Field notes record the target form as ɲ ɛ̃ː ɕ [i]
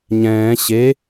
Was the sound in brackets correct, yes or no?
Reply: no